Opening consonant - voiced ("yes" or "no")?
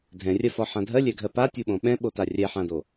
yes